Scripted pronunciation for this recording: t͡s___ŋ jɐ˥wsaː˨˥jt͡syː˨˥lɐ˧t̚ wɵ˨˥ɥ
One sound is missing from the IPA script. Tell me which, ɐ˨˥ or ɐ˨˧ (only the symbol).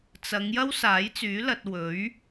ɐ˨˧